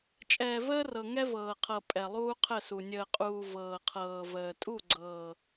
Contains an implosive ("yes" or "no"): no